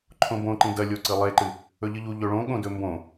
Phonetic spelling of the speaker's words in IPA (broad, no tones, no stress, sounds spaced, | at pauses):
ǃʰ õ b õ ǃ ĩ d ɐ lʲ o ǀ ɨ lˠ e ǃ ɨ | ɵ ʎ ɨ ʎ u ʎ ɵ ɭ õ ɠ õ d ɵ m b õ